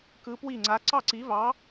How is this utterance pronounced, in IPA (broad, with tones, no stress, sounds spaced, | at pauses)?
k ɯ˧˥ p w i˥˨ ŋ͡ǀ a˧˥ ǀ ɑ˥˨ ǀ i˧˥ v ɑ˧˥